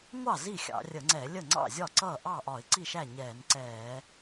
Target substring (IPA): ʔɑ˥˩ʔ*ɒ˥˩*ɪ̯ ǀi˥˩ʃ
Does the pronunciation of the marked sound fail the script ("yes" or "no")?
yes